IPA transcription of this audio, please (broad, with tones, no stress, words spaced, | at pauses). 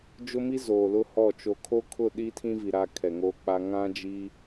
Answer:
d͡ʒʊ˦mi˦zoː˨ lʊ˦hɔ˦˨ t͡ʃo˨kʰo˦kʰʊ˦˨ ɗi˦tʰĩ˦vi˨ ɾa˦kʰɛ˨ŋoː˦k͡pa˦ ŋã˦d͡ʒi˦